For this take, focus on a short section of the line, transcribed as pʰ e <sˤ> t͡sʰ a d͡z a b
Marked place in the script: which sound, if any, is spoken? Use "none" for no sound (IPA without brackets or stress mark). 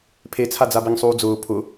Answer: none